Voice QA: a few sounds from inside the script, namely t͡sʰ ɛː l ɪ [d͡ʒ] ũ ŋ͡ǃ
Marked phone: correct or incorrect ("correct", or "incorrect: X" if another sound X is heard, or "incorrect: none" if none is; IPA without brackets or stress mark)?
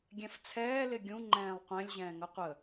incorrect: ɡʲ